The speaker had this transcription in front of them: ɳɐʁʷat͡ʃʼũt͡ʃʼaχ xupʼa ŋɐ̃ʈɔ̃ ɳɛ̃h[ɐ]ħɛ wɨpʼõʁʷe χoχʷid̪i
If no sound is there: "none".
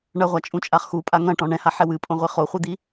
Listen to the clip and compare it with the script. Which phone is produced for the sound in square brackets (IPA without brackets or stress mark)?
a